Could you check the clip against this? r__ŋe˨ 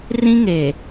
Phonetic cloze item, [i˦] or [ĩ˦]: ĩ˦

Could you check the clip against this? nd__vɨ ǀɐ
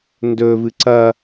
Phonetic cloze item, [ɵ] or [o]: ɵ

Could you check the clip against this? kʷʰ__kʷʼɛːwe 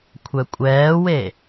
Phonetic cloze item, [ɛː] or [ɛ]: ɛ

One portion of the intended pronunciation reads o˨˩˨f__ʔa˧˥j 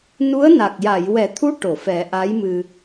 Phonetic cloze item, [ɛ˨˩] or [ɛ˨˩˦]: ɛ˨˩˦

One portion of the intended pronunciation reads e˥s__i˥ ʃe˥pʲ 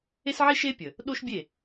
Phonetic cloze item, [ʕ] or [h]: ʕ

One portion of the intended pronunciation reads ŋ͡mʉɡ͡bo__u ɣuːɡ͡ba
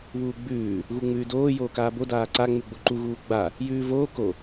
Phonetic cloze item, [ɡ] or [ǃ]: ǃ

